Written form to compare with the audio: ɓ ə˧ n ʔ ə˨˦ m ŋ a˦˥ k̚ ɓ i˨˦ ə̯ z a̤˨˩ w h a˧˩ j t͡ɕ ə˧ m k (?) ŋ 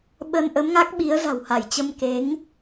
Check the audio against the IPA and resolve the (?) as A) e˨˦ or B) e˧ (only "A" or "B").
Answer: A